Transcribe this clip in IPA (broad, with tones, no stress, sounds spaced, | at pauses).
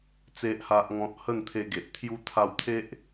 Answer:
t͡s e˨ ʔ h a˨ ʔ ŋ ɔ̃˨ t̚ h ə˥˧ n t̪ʰ e˧ ɡ e˨ ʔ t̪ʰ j u˧ t̪ʰ a˧ w t̪ʰ e˦ ʔ